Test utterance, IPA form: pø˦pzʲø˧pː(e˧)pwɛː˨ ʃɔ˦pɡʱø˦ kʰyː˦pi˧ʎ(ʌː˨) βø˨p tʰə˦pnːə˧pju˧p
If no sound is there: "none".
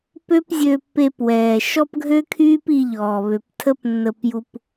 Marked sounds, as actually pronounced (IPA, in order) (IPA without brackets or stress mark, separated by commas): e˧, ɔː˨